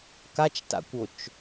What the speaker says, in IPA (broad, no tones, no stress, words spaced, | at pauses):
kat͡ʃta̰kʷot͡ʃ